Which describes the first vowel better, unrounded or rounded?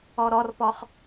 rounded